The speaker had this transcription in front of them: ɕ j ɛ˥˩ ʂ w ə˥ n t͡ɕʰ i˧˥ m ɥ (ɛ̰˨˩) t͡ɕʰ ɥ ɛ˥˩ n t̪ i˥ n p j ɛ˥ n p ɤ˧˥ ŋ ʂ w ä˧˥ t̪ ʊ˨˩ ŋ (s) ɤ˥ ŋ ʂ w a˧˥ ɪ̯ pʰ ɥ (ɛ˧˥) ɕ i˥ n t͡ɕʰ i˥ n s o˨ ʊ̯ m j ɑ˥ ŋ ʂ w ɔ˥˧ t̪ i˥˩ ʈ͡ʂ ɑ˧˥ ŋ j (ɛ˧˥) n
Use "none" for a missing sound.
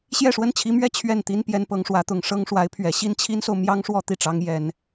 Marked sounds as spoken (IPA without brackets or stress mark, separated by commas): ɛ˥, ʂ, ɛ˨˩, ɛ˨˩˦